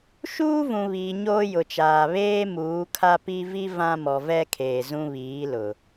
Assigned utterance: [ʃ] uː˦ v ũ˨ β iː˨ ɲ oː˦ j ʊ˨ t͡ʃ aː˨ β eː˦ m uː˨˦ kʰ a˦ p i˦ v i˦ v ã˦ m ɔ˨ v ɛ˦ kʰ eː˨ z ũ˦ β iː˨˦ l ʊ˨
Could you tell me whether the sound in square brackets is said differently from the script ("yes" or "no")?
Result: no